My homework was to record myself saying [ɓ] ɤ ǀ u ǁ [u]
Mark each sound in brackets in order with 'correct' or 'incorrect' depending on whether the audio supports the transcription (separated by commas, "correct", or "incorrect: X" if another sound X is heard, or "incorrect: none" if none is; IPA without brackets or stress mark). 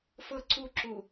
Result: incorrect: f, correct